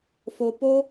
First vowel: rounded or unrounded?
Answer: rounded